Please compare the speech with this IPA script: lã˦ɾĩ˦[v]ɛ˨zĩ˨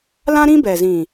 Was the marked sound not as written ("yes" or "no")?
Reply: yes